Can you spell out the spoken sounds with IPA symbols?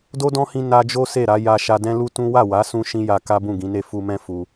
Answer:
d o˦ d ɔ̃˦ h ĩ˧ n a˧ d͡ʒ o˦ s e˦˨ ɾ a˨˦ j a˧ ʃ a˧ d ɛ̃˦ l u˦ t ũ˦ w a˦˨ w a˨˦ s ũ˧ ʃ ĩ˦ j a˧ k a˦ b ũ˦˨ ɡ ĩ˨˦ n e˦˨ f u˧ m ɛ̃˦ f u˧

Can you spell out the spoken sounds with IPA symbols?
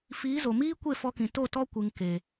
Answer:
f iː˨˦ z o˨ m iː˦ kʷ e˦˨ f ɔ˧ k ĩ˨ t o˦˨ t ɔ˦ kʷ ɨ˨ ŋ k e˨

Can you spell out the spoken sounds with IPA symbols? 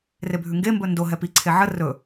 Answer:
r e bʱ ʉ ŋ ɡ e m b ɵ n d o ɦ ɛ p i ǀʰ e ʕ ə r ɵ

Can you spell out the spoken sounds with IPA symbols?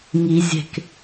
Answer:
ŋ i zʲ e̤ k

